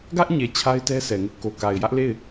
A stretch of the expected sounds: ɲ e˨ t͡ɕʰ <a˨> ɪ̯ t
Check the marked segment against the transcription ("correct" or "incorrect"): incorrect